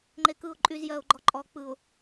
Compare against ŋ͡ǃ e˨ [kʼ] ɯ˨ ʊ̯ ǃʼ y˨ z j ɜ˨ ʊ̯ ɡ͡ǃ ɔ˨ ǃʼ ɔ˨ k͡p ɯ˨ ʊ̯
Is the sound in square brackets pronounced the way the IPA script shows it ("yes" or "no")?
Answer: no